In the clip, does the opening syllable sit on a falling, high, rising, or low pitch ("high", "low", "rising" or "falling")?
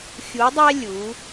rising